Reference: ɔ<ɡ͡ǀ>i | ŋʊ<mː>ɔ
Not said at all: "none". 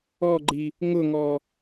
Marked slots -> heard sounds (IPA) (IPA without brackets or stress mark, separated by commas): ɡ͡ǃ, ŋ